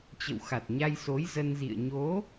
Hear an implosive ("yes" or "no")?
no